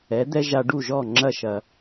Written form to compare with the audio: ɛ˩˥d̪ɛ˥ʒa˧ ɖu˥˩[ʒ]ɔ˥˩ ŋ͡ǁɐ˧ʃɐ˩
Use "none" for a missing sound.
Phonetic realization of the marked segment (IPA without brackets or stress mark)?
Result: ʒ